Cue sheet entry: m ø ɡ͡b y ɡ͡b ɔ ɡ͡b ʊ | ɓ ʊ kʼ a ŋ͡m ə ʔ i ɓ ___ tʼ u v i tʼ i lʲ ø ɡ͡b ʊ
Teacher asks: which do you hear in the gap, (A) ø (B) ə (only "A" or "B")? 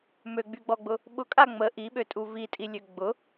A